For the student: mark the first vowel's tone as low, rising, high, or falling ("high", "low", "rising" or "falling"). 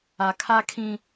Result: low